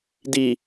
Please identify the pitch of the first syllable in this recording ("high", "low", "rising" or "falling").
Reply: low